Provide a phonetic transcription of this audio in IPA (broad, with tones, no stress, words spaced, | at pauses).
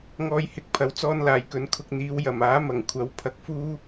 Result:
ŋɔː˧jhɪ˨˥k̚pʰɐ˨w t͡sɔː˧nlaː˨˩jkɵ˨n kʰʊ˧k̚n̪iː˨˧w jɐ˨˩maː˨˥mɐ˨˩ŋkʷʰɐ˨˥w pʰɐ˧k̚fuː˥